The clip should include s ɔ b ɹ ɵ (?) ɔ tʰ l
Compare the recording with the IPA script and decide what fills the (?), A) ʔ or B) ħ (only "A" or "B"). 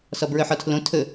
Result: B